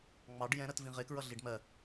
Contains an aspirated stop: no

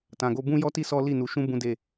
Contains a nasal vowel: yes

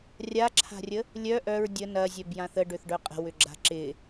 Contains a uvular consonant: yes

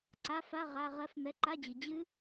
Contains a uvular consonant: yes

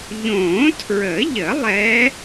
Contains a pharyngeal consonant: no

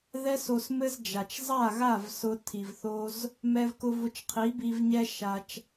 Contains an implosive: no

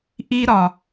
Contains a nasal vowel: no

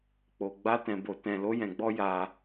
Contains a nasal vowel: yes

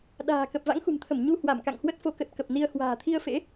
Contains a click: no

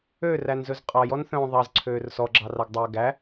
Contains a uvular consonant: yes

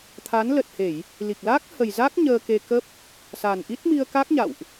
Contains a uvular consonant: no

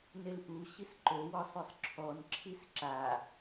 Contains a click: yes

